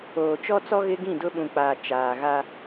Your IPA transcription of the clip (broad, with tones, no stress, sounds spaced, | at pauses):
oː˨ t͡ʃ ɔ˦ t͡s ɔ˦ ɣ ɪ˦ ɡ ĩ˦˨ d ʊ˦ ɓ ũ˨ k͡p aː˨ t͡ʃ aː˨ ɣ a˦